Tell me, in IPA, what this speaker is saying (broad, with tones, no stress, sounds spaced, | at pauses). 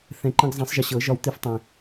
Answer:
θ ɛ̃˨˩ ǃ ə̃˧ ɡ zˤ ɛ̃˨˩˦ sˤ ʒ ə˨˩ ɕ ɤ˨˩˦ ʒ ɒ˧ w t̪ i˧ f tˤ ɛ̃˨˩